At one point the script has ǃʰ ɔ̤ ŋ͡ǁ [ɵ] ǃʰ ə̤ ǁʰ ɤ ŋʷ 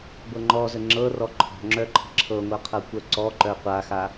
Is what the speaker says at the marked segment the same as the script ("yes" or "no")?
no